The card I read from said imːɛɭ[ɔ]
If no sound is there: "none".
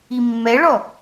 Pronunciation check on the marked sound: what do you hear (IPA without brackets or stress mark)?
ɔ